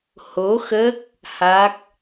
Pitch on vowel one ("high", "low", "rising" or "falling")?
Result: rising